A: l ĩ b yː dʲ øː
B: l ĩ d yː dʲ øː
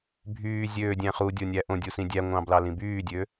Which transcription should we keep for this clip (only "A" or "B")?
A